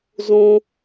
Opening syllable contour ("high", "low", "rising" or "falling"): high